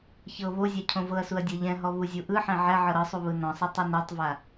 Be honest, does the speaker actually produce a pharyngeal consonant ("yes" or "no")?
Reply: yes